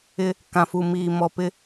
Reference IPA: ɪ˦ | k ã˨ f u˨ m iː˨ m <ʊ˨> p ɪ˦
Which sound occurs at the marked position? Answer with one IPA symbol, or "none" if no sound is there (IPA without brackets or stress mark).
ɔ˨